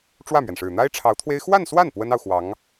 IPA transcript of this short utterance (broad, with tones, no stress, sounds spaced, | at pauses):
ʈ͡ʂ w ä˥˩ m ɥ ɛ˩ n ʂ ɻ̩˨˩ n̪ a˥ ɪ̯ ʈ͡ʂʰ ɑ˧˥ ʊ̯ t̪ʰ w e˥ ɪ̯ x w a˥˧ n s w a˥˩ n p w ə˥ n ɑ˨ ʊ̯ x w ɑ˧˥ ŋ